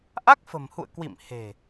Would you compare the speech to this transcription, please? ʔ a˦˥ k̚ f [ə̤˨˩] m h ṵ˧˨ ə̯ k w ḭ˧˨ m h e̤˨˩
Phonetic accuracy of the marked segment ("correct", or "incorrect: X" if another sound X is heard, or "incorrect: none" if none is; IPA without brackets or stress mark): correct